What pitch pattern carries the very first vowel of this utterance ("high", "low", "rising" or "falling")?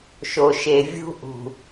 low